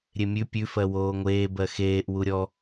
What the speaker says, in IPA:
ɾʲ e mʲ ʉ pʲ ʉ f ɜ w oː ŋʷ eː b ɜ x eː ʔ w u ɾʲ ɔ

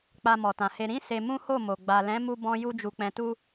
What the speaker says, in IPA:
k͡p a˧ m ɔ˨ t ã˨ h e˧ ɾ ĩ˦ s e˧ m ũ˦ h o˦˨ m o˨ ɡ͡b a˨ l ɛ̃˨˦ m u˧ b ɔ̃˦ j u˧ d͡ʒ u˨ k͡p ɛ̃˨ t u˧

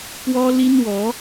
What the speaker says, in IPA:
p w ɔ˦ l i˦ n w ɔ˨˦

